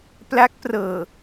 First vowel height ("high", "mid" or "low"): low